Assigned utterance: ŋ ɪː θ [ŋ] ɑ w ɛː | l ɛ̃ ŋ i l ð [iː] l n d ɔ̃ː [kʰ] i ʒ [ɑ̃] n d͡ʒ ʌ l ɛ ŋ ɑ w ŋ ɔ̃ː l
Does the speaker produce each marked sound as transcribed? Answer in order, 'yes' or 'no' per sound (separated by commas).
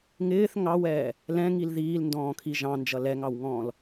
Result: yes, yes, yes, yes